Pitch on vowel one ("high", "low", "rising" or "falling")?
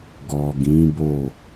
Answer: low